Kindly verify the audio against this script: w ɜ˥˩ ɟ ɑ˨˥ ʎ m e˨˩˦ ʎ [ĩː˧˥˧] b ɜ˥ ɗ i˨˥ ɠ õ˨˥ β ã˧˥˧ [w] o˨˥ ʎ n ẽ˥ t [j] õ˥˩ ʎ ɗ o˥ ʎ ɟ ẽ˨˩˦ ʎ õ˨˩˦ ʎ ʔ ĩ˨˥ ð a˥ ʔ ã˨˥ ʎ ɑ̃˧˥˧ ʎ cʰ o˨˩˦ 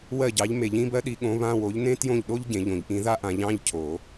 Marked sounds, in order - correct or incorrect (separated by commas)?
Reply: incorrect, correct, correct